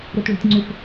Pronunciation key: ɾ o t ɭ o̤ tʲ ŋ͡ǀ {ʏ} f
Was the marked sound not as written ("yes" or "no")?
no